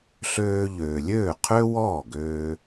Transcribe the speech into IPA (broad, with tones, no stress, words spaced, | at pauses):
ɬøː˧ʎøː˩ lʲøː˥˩qʰø˥wɔː˥˩ɡøː˧